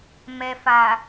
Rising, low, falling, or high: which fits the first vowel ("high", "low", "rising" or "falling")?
low